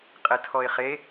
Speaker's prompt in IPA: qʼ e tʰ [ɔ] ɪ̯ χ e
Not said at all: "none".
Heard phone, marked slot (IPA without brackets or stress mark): ɔ